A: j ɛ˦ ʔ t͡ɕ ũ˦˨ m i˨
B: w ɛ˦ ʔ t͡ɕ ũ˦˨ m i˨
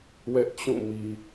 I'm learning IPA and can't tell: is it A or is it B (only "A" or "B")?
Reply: B